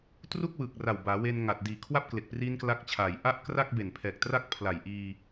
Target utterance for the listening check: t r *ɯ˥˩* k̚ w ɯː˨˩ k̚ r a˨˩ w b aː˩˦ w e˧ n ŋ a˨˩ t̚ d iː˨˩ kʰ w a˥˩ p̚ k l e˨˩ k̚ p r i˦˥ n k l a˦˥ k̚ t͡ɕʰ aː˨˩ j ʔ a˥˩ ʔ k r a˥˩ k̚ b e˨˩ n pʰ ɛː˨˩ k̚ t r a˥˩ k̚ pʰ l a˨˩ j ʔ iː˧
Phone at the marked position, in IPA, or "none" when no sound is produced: u˥˩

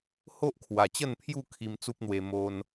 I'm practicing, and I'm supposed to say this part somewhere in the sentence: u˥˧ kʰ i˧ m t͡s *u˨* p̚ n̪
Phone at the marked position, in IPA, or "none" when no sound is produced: u˦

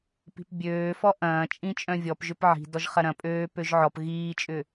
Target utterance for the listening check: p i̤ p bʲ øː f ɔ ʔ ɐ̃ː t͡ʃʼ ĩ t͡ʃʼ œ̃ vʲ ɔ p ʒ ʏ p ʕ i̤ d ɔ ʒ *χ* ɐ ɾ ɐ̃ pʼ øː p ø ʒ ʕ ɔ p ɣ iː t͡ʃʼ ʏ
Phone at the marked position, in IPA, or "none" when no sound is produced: χ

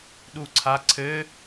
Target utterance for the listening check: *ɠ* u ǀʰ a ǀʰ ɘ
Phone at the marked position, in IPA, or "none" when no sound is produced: ɗ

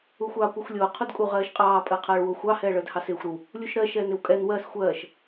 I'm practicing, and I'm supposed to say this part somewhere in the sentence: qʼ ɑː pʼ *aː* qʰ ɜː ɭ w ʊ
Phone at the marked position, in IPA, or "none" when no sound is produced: əː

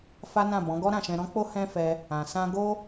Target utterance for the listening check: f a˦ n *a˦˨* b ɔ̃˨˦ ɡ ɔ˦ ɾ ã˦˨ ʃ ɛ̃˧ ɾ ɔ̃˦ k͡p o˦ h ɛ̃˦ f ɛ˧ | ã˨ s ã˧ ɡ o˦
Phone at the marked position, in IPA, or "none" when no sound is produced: ã˦˨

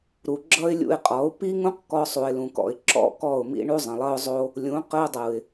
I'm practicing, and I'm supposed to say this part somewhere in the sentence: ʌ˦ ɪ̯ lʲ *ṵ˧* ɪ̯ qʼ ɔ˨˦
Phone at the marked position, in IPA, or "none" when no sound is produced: ṵ˧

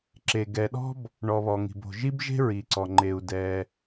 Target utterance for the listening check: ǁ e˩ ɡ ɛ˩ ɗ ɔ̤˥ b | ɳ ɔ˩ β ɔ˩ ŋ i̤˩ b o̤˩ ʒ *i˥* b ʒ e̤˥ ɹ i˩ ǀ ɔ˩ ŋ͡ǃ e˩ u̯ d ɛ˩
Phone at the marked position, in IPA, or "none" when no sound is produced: i˥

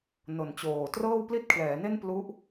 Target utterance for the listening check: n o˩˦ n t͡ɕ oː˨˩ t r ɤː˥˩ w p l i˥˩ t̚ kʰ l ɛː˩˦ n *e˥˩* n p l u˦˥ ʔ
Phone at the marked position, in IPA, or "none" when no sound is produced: e˥˩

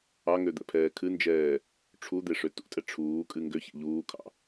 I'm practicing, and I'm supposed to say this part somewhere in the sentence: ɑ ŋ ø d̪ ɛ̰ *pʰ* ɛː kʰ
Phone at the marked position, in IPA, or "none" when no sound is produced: pʰ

